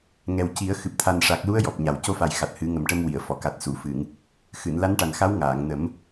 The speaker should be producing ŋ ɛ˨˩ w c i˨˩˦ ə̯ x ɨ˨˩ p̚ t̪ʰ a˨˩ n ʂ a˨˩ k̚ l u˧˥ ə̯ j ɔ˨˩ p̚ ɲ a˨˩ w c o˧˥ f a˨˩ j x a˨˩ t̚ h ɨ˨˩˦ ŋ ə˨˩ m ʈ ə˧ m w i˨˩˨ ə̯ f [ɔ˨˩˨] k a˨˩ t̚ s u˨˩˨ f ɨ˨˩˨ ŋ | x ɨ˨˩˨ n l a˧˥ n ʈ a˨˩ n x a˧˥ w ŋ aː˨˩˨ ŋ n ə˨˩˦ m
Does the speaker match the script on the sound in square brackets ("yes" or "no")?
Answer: yes